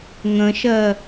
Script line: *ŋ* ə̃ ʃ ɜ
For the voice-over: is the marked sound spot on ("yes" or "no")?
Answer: yes